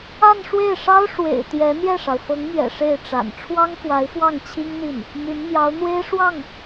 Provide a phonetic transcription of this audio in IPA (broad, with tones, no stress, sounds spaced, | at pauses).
a˥˧ n ʂ w e˥˩ ɪ̯ ʂ ɑ˥ ʊ̯ ʂ w ḛ˨˩ ɪ̯ t̪ j ɛ˧˥ n̪ j ɛ˥˩ ʂ ɑ˩ ʊ̯ f ɤ˧˥ ŋ m ɥ ɛ̰˨˩ ʂ e˥˩ ɪ̯ ʈ͡ʂ a̰˨˩ n ʈ͡ʂʰ w ɑ˥ ŋ f w a˧˥ ɪ̯ x w ɑ˥˩ ŋ t͡ɕʰ i˥ ŋ n̪ i˥˩ n | m y˧˥ n m j ɑ˧˥ ʊ̯ n̪ w e˥ ɪ̯ ʂ w ɑ˥˩ ŋ